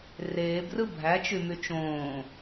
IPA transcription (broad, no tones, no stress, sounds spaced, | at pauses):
r eː b r ɯ bʱ æ t͡ʃ y m y t͡ʃ õː